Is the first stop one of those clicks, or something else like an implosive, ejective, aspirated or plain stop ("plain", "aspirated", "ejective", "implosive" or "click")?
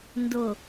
plain